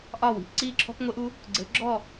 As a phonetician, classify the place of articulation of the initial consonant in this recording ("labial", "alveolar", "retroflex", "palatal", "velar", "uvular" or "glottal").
glottal